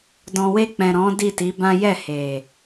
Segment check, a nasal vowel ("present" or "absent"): present